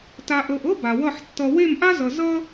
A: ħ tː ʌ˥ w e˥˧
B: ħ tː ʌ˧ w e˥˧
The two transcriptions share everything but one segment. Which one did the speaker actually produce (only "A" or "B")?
B